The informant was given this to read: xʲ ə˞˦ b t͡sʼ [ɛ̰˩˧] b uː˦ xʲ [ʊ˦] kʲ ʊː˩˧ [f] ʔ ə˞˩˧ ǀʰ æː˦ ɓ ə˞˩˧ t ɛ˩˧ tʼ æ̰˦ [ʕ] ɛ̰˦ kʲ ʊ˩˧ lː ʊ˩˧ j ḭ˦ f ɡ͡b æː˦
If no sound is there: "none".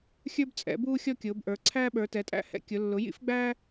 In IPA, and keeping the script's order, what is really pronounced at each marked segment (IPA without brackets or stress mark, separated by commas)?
ɛ̰˩˧, ɔ˦, b, h